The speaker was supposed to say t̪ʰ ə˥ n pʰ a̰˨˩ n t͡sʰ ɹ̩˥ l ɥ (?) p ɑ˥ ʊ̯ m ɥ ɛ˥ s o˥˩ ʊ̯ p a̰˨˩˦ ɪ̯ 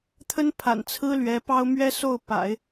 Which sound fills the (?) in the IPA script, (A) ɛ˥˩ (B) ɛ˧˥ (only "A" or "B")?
B